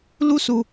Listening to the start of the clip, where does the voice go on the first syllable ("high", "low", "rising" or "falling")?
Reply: high